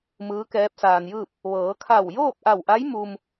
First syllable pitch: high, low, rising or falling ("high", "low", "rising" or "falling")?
rising